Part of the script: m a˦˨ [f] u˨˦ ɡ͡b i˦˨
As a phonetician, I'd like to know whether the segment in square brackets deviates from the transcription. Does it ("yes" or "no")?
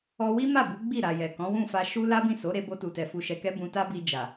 yes